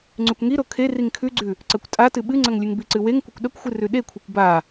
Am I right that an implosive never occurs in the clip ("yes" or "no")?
no